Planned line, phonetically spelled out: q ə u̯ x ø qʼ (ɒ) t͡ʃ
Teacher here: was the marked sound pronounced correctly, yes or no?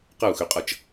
no